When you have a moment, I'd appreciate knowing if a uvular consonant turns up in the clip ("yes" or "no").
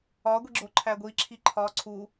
no